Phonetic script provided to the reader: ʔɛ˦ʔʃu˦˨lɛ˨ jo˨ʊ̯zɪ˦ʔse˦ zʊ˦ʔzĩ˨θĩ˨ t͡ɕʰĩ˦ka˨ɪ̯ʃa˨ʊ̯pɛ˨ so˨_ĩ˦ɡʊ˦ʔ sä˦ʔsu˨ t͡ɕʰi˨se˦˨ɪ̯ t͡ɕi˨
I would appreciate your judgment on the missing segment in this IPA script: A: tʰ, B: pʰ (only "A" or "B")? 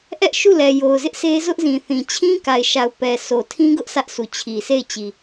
A